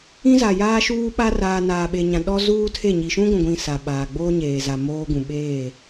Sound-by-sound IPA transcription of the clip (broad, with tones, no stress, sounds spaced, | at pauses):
ĩ˦ z a˨ j aː˦ ʃ uː˦ ɓ a˦ r aː˨ n aː˨ ɓ e˨ ɲ ã˨ ɗ ɔ˦ z uː˦ tʰ e˦˨ ɲ i˨ ʃ ũ˦ ɡʷ ũ˨ ɡʷ ĩ˨ s a˨ ɓ aː˨ ɡ͡b oː˦ ɲ eː˨ z a˨ m oː˦ ɡ ũ˨ ɓ eː˦˨